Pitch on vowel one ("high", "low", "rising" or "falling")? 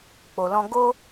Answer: low